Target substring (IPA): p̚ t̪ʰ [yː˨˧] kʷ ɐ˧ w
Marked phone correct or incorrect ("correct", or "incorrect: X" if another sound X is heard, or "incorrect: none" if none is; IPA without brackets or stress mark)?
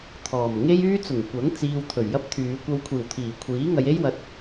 correct